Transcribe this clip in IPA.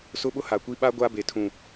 s ʊ˦ ɓ ʊ˦ h a˨ kʷ i˦ ɓ a˦ ɡʷ a˦ b e˨ tʰ ũ˨

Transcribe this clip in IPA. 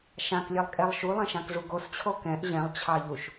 ʃ ã k lʲ ɛ lˠ kʼ ɛ lˠ ʃ u lˠ ɛ̃ ʃ ã k ʐ u ɡ o s t͡ɕʰ o k ɛ̃ ʔ ʑ ɛ̃ lˠ t͡ɕʰ ɑ ʎ u ʃ

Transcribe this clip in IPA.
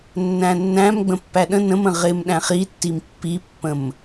nː æ̃ nː æ̃ m ɡ͡b ə̃ pː æ ɗ ə̃ n ə̃ m ə̃ ʁ ɪ m ɗ æ̃ χ i tː i m pː i pː ə̃ m

